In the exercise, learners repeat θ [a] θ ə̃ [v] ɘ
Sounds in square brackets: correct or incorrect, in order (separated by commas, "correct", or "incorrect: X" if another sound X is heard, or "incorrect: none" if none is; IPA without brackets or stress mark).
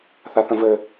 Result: correct, correct